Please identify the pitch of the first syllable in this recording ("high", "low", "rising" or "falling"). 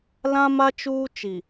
high